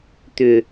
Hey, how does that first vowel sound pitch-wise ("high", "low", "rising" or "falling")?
low